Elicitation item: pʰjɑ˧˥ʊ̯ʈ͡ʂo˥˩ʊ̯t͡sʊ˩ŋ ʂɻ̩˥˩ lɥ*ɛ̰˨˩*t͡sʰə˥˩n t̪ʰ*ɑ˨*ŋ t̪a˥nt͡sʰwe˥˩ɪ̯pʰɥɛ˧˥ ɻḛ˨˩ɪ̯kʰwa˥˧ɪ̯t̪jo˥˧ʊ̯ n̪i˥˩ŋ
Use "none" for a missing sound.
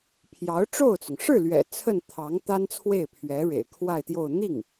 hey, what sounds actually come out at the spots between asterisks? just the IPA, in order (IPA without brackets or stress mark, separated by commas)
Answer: ɛ̰˨˩, ɑ˧˥